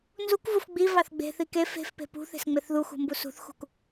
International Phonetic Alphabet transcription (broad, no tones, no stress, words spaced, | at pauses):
nzukvuf ɡ͡bivɑθ ɡ͡be̤θi ke fe̤fpe̤ pṳθe̤sŋ͡meθ ðuxṳmbu sṳθxṳk